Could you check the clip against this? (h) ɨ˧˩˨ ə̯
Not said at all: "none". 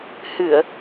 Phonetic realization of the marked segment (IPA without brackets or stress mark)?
h